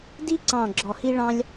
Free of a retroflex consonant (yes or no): no